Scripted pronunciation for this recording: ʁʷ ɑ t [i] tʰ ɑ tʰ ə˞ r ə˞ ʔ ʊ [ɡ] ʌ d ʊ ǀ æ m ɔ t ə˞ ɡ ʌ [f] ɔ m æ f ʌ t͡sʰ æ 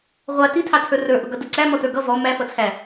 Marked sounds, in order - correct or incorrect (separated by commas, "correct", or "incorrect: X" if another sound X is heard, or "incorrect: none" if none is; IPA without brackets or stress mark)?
correct, correct, incorrect: v